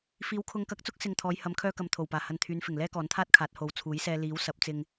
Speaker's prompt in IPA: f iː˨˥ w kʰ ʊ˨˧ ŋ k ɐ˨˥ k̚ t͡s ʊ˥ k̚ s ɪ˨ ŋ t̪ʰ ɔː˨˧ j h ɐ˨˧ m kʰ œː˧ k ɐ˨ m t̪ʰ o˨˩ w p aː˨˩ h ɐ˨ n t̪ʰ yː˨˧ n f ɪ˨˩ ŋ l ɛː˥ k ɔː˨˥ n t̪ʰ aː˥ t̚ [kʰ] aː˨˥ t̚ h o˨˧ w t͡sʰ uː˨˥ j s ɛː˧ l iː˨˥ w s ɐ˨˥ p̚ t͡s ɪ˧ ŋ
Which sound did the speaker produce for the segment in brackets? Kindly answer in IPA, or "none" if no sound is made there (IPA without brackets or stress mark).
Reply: kʰ